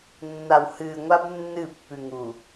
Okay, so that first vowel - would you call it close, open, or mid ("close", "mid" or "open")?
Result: open